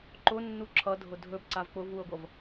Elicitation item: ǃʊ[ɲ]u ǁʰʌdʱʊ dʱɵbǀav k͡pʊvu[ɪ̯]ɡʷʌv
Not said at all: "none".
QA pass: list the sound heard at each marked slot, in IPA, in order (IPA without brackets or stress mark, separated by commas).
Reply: nː, ə̯